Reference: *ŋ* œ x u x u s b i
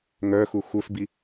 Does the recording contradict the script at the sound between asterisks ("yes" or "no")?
no